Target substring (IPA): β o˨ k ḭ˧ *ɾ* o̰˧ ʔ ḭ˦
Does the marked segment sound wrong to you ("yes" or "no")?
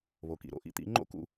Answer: no